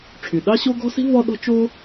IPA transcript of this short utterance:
ʈ͡ʂʰ y˩ ɗ ɑ˥ ɕ o˥ ɡ ɔ̤˥ s i̤˥ v ɔ˥ ɗ ɔ̤˥ t͡ʃ o˥

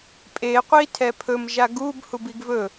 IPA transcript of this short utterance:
pʼ e qʷ i tʰ ɛ pʰ ɵ m ʒ a ɡ u b h u b i ɡ v ɵ

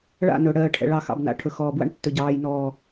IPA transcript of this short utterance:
ɭ a̰˦˨ n ɵ˨ ɽ ɜː˨ ʈʰ ɛ̰˨ ɭ ɑ˨ x ɑ̰˨ b n a̰˨ ʈʰ ɵ˨ x ɔː˨ b w a̰˦ ɳ tː ɵ˨ ɟ ɑː˨ j n ɔː˨

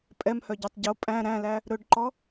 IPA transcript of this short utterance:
pʼ ɛ m h œ ɟ œ tˤ ɟ o pʼ æ̃ ɾ æ̃ l æ | ɾ ɵ ɖ ǃ ɔ

